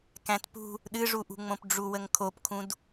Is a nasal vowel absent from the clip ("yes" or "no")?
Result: no